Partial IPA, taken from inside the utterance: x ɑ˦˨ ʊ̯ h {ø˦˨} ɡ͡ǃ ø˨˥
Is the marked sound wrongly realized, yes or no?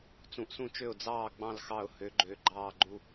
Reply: yes